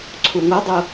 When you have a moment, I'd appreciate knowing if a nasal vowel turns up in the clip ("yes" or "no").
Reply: no